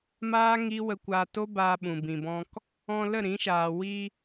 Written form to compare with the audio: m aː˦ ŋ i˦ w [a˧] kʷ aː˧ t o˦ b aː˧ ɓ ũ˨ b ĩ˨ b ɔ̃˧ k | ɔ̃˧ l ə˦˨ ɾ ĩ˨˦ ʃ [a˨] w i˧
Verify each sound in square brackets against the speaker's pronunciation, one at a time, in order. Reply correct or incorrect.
incorrect: ə˧, incorrect: aː˨

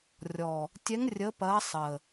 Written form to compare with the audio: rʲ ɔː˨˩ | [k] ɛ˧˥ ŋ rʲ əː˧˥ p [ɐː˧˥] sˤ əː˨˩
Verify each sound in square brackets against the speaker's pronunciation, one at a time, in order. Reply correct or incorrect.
incorrect: tʲ, correct

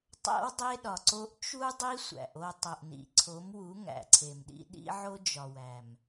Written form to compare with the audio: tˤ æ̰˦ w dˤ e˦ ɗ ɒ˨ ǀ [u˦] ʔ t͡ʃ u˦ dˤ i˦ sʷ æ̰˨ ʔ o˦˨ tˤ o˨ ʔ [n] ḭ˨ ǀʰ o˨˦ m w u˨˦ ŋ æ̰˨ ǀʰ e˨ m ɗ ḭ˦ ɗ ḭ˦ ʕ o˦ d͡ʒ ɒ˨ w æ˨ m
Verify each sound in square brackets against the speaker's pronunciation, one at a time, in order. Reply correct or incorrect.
incorrect: o˦, correct

